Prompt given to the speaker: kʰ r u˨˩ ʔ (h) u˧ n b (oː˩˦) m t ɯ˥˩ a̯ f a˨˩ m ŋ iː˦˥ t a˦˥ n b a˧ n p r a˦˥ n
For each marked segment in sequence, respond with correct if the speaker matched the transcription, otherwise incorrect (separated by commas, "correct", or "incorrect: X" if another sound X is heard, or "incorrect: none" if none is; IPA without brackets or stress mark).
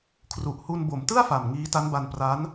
correct, incorrect: o˩˦